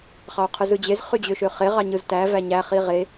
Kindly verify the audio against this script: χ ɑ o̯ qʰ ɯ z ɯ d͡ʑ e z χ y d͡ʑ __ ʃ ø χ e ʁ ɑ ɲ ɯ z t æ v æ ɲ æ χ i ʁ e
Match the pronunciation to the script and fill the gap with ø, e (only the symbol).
ø